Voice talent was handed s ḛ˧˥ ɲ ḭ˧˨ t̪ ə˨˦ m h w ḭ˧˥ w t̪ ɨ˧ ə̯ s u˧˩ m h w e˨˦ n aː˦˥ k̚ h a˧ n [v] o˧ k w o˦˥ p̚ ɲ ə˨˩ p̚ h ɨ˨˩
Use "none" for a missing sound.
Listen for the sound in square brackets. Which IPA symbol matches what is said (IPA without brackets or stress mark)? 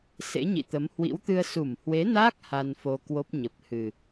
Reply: f